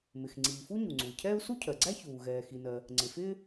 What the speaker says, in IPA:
mɪ˩xŋ͡ǀiː˩ fu˥ɲu˩ŋ͡ǀu˩i̯cʰɛː˥u̯ su˥cʰɜ˩ɡ͡ǀæ˥çuː˩ ɣɛː˩xi˩nɜ˩ | ŋ͡ǀɪ˩fɪː˥

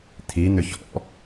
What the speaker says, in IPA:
t̪ʰi n̪ʏçɔ̰

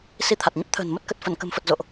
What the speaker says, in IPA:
si˧t̪ʰa˨˩t̚ɲə˦˥p̚t̪ʰə̤ː˨˩n mə˦˥t̚kə˨˩t̚ fə˧˩nkə̤˨˩mfə˨˩t̚ zo̰˧˨ʔ

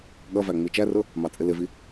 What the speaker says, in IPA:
ɠʌvæ ŋ͡mit͡ʃærʊ | mɑt͡sʼɪlɪvi

